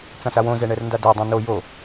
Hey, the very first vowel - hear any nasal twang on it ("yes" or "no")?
yes